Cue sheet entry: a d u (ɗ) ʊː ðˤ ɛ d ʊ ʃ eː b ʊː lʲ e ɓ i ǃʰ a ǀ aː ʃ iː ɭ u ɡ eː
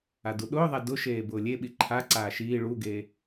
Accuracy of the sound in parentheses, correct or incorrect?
correct